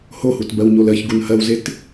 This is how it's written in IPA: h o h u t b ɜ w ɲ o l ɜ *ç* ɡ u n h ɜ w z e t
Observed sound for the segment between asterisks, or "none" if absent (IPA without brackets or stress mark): ç